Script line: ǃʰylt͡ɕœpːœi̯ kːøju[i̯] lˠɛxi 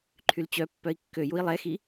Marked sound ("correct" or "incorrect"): correct